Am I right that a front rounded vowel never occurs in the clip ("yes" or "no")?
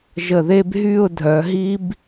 no